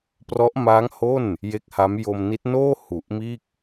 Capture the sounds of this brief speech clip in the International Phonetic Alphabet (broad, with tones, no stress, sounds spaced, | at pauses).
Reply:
p r ɔ˦˥ ʔ m aː˦˥ ŋ h o˥˩ n | j e˦˥ k̚ h a˦˥ m j o˧ m n i˦˥ t̚ n oː˥˩ h u˨˩ ʔ m iː˥˩ k̚